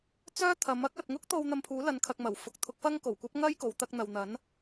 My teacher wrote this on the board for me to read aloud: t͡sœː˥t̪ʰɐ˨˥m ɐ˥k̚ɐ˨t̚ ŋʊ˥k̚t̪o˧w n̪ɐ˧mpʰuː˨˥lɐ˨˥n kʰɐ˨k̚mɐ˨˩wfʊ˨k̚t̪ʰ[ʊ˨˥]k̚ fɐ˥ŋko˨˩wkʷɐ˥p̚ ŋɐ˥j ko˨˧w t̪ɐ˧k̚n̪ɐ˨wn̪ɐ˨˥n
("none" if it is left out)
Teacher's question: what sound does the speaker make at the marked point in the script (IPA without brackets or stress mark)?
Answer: ʊ˨˥